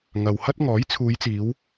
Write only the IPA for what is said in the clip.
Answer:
ŋɐ˨whɐ˥t̚ ŋɔː˨˥jt͡sʰuː˨˧jt͡siː˨˧w

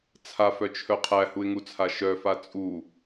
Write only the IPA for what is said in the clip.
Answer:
t͡sʰafœt͡ʃʰœ qʰæhuɪ̯ŋut͡sʰa ʃœfa t͡sʼu

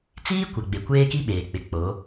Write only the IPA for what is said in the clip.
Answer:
t͡siː˦kʷa˨ɡ͡be˨ kʷeː˦ki˦ɓeː˨k͡pɪ˨ k͡po˨˦

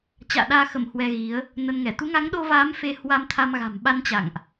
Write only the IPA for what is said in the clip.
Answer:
t͡ɕa̰ː˧˨ɗaː˧xə˧˩m hwɛ˧ɣi˨˦ə̯ | nə˧nŋɛ˧˩ t̪u˨˦ŋa˨˦ŋɗo˧vaː˨˦m fe˧hwa˧mt̪ʰa˧mɣa̤˨˩m ɓa˧nt͡ɕa̰˧˨ŋʔ

